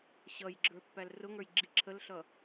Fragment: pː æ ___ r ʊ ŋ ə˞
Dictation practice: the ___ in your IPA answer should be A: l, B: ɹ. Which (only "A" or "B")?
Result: A